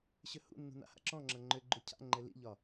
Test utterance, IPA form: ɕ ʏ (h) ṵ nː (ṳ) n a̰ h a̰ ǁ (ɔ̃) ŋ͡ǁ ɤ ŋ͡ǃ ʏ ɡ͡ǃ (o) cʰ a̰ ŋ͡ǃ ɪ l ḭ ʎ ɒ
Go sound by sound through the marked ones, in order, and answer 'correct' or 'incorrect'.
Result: correct, correct, correct, incorrect: u

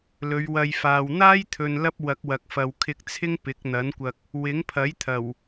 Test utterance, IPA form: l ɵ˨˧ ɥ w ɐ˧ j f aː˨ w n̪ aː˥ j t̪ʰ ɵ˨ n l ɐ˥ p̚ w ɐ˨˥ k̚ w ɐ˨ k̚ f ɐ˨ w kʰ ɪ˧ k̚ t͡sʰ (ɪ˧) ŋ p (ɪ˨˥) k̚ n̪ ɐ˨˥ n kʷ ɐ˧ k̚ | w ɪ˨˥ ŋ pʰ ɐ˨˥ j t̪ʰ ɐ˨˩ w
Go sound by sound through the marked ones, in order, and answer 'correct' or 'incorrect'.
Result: incorrect: ɪ˥, correct

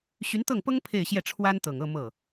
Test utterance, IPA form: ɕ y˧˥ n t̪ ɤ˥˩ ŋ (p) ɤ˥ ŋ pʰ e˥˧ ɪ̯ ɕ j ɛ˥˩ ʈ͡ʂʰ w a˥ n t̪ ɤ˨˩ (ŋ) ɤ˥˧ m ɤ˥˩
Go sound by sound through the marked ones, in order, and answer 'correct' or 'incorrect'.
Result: correct, correct

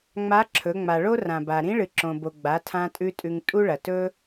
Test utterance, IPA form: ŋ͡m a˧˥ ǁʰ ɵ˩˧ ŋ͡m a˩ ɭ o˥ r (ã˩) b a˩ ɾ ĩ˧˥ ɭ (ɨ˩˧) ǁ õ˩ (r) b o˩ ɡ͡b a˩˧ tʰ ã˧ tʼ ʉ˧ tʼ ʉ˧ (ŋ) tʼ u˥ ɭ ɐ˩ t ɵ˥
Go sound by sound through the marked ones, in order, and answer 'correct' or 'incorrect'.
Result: correct, incorrect: ɨ˩, incorrect: none, correct

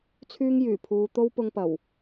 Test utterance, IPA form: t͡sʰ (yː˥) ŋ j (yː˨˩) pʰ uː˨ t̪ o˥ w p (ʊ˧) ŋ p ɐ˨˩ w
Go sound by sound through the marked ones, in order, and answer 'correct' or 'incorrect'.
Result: correct, correct, correct

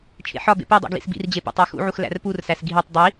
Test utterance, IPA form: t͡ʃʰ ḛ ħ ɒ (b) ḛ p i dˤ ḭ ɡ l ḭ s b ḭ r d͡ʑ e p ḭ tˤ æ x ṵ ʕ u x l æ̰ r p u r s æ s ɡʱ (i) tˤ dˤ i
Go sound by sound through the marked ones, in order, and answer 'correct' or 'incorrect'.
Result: correct, correct

